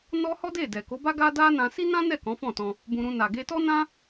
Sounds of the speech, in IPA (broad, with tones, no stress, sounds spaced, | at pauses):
n ɔ˧ h ɔ˦ d e˦˨ d ɛ˨ k o˨˦ b a˦ ɡ a˦ d a˦ n ã˧ s i˦ n ã˦ n ɛ˦˨ k ɔ̃˨˦ f ɔ̃˦˨ t ɔ̃˧ | b ũ˧ ɾ ũ˧ n a˨ ɡ e˧ t ɔ˦ n ã˦